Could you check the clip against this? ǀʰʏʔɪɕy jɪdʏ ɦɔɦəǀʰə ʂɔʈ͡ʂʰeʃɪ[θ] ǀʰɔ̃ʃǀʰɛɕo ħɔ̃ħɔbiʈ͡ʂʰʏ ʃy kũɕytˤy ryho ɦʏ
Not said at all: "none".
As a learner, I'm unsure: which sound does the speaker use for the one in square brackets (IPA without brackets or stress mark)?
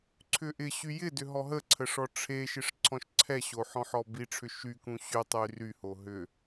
ʂ